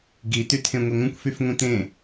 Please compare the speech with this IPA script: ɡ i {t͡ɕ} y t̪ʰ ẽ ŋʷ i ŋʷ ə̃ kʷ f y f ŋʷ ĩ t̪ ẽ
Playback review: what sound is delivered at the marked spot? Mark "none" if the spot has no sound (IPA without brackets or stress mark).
t̪